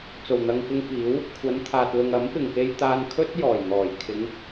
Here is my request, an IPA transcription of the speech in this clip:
t͡s o˨˩ w n̪ ɐ˨ ŋ k ɪ˧ ŋ f iː˨˥ w | kʷʰ ɐ˨˧ n t̪ʰ aː˨ t̚ l ʊ˨ ŋ ɐ˨˥ m p ɪ˨˩ ŋ k e˧ j t̪ aː˧ n kʰ ɵ˥ t̚ j ɔː˨˩ j n̪ ɔː˨˩ j kʰ ɪ˨˧ ŋ

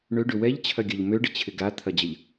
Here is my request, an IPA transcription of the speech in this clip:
ɳ ø ɖ ʏ w ɛ ʎ t͡ɕʰ ɐ ɡʲ ɐ ʎ m ø ɖ ɪ t͡ɕʰ ɪ ɡ a t̪ʰ ɐ d͡ʑ ɐ ʎ

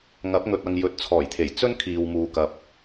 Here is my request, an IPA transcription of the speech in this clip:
ŋ ɐ˨˥ p̚ ŋ ɵ˨ t̚ ɐ˨ ŋ j ɵ˨ t̚ t͡sʰ ɔː˨˩ j t̪ʰ e˨˩ j t͡s ɵ˥ n kʰ iː˨ w m uː˨ k ɐ˨ p̚

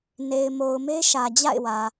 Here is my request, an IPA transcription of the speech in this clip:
n e˨ ɪ̯ m o˨ ʊ̯ m e˦ ʃ ä˨ d͡ʑ a̰˦˨ ɪ̯ w ä˨

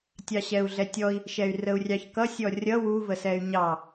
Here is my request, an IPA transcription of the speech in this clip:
tʲ ɑ ɕ ɛ u̯ ɮ ɛ tʲ ɔ i̯ | ʃ ɛ y̯ r ə u̯ rʲ ɑ ç k ʌ sʲ ɔ rʲ ʌ w u v ə s ɛ y̯ ɲ ɑ

